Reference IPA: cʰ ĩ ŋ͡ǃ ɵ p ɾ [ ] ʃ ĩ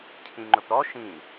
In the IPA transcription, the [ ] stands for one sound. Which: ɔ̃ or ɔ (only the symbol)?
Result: ɔ